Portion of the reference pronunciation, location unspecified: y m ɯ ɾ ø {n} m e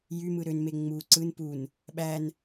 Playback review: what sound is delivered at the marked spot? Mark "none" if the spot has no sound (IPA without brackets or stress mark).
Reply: n